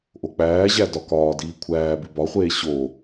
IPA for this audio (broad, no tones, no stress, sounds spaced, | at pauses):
ʔ o k͡p æː ʑ æ d ɒ k ɒː d iː kʷʰ æː b i b ɒ χʷ eː ɕ o